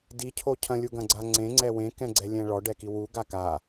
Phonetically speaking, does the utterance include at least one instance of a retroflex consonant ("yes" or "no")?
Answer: yes